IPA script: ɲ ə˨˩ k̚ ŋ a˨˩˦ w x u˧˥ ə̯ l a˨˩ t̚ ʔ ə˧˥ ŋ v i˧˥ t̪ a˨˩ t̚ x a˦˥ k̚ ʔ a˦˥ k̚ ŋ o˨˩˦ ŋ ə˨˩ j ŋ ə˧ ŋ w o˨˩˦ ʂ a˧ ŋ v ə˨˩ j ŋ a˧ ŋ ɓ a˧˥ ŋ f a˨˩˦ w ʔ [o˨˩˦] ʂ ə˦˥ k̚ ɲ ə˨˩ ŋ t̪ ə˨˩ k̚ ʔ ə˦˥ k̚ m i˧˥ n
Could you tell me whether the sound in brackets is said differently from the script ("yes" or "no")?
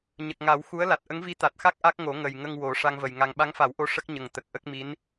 yes